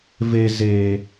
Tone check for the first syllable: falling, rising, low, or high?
low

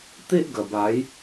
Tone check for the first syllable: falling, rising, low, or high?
high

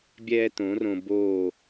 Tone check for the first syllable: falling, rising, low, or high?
high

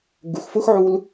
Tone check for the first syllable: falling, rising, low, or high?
low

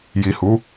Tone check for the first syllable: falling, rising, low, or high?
low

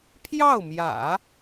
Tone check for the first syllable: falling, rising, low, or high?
falling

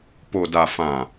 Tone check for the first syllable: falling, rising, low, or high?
low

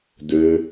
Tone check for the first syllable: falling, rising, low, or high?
low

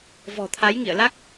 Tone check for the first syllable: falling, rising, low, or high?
low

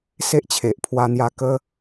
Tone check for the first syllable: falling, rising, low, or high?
high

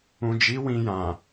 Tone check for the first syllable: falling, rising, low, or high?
low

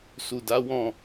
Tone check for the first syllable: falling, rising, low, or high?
low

